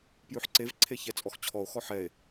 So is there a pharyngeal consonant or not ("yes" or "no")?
yes